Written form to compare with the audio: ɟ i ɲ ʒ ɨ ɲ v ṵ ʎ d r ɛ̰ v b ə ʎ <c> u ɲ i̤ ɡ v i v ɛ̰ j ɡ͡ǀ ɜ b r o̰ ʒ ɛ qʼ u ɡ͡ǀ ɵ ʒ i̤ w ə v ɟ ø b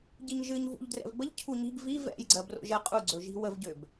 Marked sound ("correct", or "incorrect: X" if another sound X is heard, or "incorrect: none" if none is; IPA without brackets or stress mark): incorrect: cʰ